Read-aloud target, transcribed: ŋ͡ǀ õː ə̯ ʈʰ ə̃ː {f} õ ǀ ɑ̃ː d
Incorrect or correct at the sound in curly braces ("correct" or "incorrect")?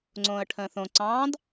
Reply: incorrect